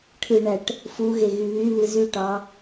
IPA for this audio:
ʈʰ ɯ ɳ æ ʈ | f u ɣ e ɣ y β y β ɯ z y ʈ ɑ

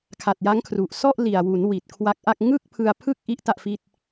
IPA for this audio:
kʰ a˨˩ t̚ j a˦˥ ŋ kʰ r u˨˩ ʔ s ɔ˥˩ ʔ l i˨˩ a̯ w u˩˦ n w i˨˩ t̚ kʰ w a˦˥ k̚ ʔ a˥˩ k̚ ŋ ɯ˥˩ k̚ pʰ ɯ˧ a̯ pʰ ɯ˥˩ k̚ ʔ i˦˥ ʔ t a˥˩ ʔ f i˥˩ t̚

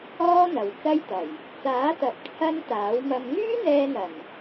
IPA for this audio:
ɔː˥ n̪ ɐ˨ w t͡s ɐ˥ j t̪ ɐ˨˩ j | t͡s aː˨˥ t̪ ɐ˨ p̚ t͡sʰ ɐ˥ n t̪ aː˨˥ w m ɐ˧ m ŋ yː˥ n̪ ɛː˧ n̪ ɐ˨˩ m

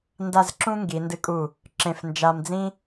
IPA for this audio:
n d a˥˧ z ǁ ũ˥ ŋ ɡ i˩˧ n d ɨ˧ kʼ u˧˩ | ǁ ẽ˧˩ f n d͡ʒ a˧ m d͡z ĩ˥

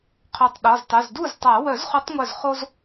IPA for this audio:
qʰ œ˧˩ tˤ ɗ ɔ˩˧˩ z tˤ u˩˧˩ z d u˥˩ z tˤ a˨˩˦ w œ˨˩˦ z χ u˨˩˦ tˤ ŋʷ œ˧˩ z χ o˦ z

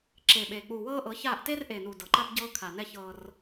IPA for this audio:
ǁ e˨ ɓ eː˨ k͡p uː˨ w ɤː˦ ʔ ɤ˨˦ ç aː˦˨ ʔ t eː˦ r ʔ eː˨ n uː˨ d ɤ˨ ǃ a˦ b ɟ ɤː˦ kʰ a˨ n ɛ˦˨ ç ɤː˦ r

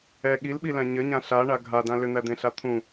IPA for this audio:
ɛ ɠ i l ɓ i l æ̃ ɲ ɘ ɲ ã ɬ a ɳ a ɡʱ a d ã l ʏ n̪ æ d̪ ẽ ɬ a t̪ʰ ũ

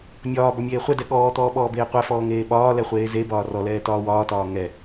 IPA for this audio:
mʲ ɒː b ɔ mʲ eː χʷ ɛ d ɛ ɠ ɔː t̪ ɔː ɓ ɔː b eː qʷ ɛ f ɔː ŋ eː ɓ ɒː l ɛ χʷ eː z e b ɒː r ɔ l ɛː t ɒː w ɒː t ɒː ŋ ɛ

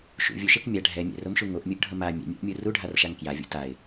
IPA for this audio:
ʃ ṵ vʲ u ʃ e k mʲ a ɖʱ ɛ mʲ ɛ̰ r o m ʃ u ŋ o ʔ mʲ u ʔ ɖʱ ʌ m a mʲ ɛ̰ mʲ ɛ̰ ʔ mʲ u r u ɖʱ a r ʃ a ŋ k j a vʲ ṵ t a ɪ̯

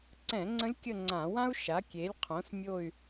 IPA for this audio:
ǀ ɛ̃˧˩˧ ŋ͡ǀ ə̃˧˥ lʲ kʲ ə˦˨ ŋ͡ǀ ã˧˩˧ w ã˥ u̯ ʃ a˩˥ kʲ e˩˥ lʲ qʰ õ˩˥ s mʲ o˦˨ y̯

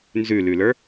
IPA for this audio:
n z ʉ l ʉ l ə˞

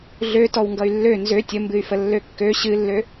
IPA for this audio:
ɮ ø t ɔ w ŋ ɡ ʌ y̯ lː ø n z ø tʲ ə m b ɨ y̯ f ə lː ø kː ø ɕ ɨ lː ø

